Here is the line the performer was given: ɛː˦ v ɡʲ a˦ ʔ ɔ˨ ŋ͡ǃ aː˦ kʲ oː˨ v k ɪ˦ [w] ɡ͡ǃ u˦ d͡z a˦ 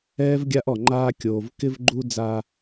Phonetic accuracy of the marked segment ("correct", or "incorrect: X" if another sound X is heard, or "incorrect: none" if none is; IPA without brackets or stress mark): incorrect: v